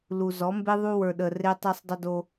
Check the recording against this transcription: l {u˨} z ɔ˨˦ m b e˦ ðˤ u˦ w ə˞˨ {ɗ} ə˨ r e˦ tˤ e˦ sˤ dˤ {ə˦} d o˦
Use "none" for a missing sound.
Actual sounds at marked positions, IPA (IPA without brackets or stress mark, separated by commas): u˨, ɗ, ə˦